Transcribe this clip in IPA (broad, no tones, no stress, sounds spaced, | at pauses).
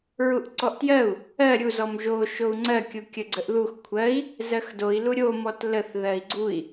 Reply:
ɹ u ʔ ǀ ɔ ʔ t j ɜ u̯ | ɜ ɾʲ u z ɔ m ʒ o ʃ o u̯ ŋ͡ǀ ɜ kʲ u kʲ ə ɡ͡ǀ ə ʔ ð u x kʷʰ ɜ i̯ | z ɜ x d o i̯ l u ɾʲ o m ɔ t l ə θ ð ɜ i̯ ɡ͡ǀ u i̯